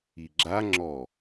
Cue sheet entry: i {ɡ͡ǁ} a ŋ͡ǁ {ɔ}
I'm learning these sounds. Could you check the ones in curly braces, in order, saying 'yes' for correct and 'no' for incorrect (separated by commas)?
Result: yes, yes